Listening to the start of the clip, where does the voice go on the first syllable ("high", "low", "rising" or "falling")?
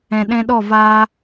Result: low